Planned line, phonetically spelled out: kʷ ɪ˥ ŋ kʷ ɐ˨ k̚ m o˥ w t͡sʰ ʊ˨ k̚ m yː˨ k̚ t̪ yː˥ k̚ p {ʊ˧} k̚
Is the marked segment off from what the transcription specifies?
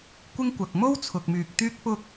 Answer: yes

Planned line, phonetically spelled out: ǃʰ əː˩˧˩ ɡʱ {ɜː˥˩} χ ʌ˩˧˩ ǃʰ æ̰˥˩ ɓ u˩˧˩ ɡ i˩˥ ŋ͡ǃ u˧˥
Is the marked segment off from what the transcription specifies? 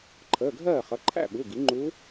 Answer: no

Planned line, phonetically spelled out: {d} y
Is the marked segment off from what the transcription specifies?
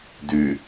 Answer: no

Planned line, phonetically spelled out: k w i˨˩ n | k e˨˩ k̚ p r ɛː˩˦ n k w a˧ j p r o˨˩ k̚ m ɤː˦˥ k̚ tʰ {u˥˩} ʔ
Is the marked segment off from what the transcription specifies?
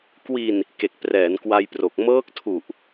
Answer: yes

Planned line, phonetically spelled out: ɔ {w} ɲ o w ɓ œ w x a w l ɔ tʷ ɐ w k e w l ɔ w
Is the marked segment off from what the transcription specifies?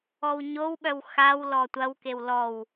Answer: no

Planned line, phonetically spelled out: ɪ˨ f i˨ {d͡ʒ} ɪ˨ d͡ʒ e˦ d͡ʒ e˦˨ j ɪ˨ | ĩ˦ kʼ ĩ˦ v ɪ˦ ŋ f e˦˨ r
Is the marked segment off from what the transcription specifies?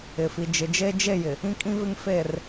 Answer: no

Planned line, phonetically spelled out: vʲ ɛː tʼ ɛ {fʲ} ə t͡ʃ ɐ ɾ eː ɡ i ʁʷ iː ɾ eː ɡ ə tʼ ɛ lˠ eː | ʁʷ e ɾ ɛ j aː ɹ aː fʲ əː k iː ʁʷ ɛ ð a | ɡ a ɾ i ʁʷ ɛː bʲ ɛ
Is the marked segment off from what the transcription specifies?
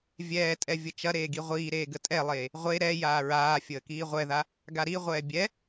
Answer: yes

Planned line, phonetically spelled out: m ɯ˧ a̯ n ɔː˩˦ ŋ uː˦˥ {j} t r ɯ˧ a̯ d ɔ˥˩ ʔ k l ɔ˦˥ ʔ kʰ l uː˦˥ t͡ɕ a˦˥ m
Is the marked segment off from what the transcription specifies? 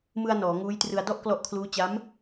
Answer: no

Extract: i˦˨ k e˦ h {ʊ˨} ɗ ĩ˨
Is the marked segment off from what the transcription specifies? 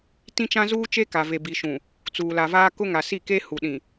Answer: yes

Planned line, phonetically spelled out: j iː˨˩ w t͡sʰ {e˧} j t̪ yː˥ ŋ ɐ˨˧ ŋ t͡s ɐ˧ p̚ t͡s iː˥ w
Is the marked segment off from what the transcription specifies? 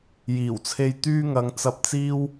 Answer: no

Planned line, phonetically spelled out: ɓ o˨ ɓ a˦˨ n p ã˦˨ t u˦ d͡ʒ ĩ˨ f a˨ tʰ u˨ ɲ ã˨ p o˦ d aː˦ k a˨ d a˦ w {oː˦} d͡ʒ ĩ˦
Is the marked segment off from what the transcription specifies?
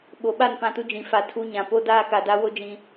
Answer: yes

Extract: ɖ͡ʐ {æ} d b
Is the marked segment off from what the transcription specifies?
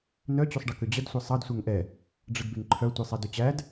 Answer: yes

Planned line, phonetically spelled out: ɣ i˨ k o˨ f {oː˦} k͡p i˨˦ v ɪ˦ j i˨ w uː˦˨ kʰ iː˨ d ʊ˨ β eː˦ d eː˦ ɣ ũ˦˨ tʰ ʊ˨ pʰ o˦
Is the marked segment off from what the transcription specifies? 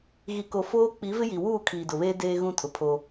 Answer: no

